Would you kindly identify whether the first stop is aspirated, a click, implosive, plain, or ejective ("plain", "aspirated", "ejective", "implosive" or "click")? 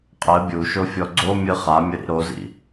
ejective